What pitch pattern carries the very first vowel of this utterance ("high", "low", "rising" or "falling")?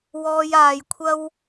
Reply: low